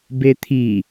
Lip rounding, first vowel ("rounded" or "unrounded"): unrounded